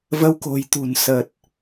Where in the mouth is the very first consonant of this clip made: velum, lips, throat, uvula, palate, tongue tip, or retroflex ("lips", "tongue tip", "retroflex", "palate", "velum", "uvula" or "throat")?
lips